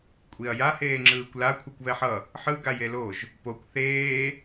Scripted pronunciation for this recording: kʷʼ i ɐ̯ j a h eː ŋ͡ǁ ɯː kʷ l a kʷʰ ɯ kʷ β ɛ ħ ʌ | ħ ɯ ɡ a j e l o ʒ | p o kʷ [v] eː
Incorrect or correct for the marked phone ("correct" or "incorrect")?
incorrect